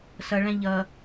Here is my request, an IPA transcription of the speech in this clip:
s ʌ ɭ æ̃ ʎ ʌ

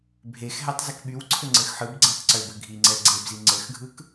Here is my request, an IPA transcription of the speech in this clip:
bʱ e x ɦ ɛ tˤ z ɘ k ɓ y w ǀʰ ɘ ŋ͡ǀ ɘ x ħ ɯ b ɡ͡ǀ ɛ tˤ ǀ ø b ɘ ɡʱ i ŋ͡ǀ ɛ ɡ͡ǀ e b z i ŋ͡ǀ ɘ x ɡʱ ɯ k

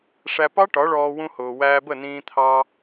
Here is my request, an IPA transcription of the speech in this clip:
ʂ æ˧ p ɑ˦ ʈ ɒ˨˦ ɭ ɔː˧ w ũ˦ h ʊː˧ w æː˧ b ə˦˨ n ĩː˧ t̪ʰ ɑ˧

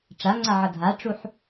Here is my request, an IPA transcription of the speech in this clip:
ʈ͡ʂ a ŋ͡ǀ a ʕ ʌ dʱ a ʈ͡ʂ u ħ

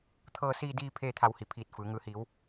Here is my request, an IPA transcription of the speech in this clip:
t̪ʰ ɤː˧ s iː˧ d iː˧ pʰ eː˥˨ t̪ʰ a˧ w h i˩˧ pʰ iː˧˩ t̚ f ɯː˩˧ ŋ ɯː˩ h iː˩˧ w

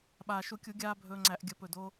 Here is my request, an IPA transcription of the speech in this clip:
ɓ aː˩ ʃ u˧˩˧ kʲ u˧˩˧ ɡʲ aː˧ bʱ ɵː˧ ŋ͡ǀ æ˧˩˧ ʔ ɡʲ ə˧˩˧ p ɵ˧˩ d oː˧

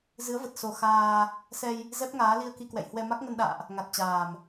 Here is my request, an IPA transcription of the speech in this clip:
z ɨ˨˦ ə̯ v ə˨˩ t̚ s o˨˩ x aː˧ | s ɛ˧ j | z ɛ˦˥ p̚ ŋ aː˨˦ l i˧ ə̯ k i˧ k w ɛ̰˧˨ j h w ɛ˧ m a˦˥ k̚ ŋ ə˧ n ɗ a̰ː˧˨ ʔ | ŋ a˨˩ t̚ t͡ɕ aː˨˩ m

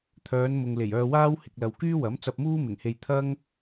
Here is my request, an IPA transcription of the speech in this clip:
t̪ʰ œː˨˧ n m ʊ˨ ŋ l e˨˩ j œː˧ w aː˥ w h ɪ˨ k̚ l ɐ˨ w k yː˥ w ɐ˨˥ m t͡s ɐ˧ p̚ m uː˥ m ɪ˨˩ ŋ h e˧ j t̪ʰ ɐ˥ ŋ

